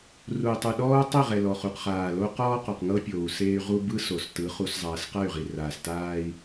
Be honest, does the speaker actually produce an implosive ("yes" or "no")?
yes